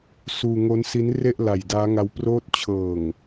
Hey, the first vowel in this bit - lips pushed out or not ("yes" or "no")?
yes